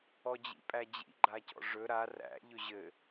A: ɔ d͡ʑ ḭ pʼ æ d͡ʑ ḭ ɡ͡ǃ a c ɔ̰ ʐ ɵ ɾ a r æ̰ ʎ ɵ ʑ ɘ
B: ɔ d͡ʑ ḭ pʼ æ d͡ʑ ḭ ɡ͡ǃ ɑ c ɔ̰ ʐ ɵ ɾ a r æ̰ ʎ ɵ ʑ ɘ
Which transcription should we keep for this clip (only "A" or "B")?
A